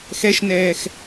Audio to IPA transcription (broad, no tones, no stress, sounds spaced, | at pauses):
x ɛ ʃ n ɛː x